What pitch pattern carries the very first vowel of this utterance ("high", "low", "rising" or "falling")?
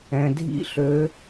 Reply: low